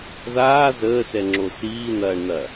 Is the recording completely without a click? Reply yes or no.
no